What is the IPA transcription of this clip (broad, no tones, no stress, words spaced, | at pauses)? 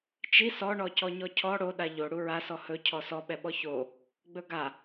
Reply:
t͡ʃi sɔɳɔcɔ ɲɔcʰɔ ɽoɗa ʎo ɽuɹasɔ hɵcʰɔ sɔɓɛɓɔ ço | ɡ͡bɵɡa